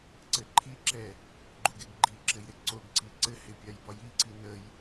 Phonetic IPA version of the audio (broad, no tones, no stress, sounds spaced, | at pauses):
ǀ ɘ ǃʰ i ǁ ɛ | ɡ͡ǃ u ɡ ɪ ɡ ɡ͡ǃ i ǁ ɘ j ɾ ɪ ǀ o ɡ ǀ i ǀ ɘ h ɪ pʲ a j b ɒ j i ǀ i n ə j